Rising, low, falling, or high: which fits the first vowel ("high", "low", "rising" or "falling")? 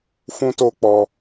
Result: high